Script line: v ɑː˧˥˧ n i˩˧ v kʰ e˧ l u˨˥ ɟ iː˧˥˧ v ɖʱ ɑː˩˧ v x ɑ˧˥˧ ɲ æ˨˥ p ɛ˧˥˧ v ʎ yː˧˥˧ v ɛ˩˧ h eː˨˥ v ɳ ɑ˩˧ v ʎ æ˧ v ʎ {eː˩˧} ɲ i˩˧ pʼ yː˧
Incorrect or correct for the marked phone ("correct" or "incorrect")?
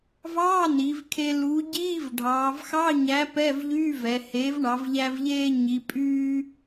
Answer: incorrect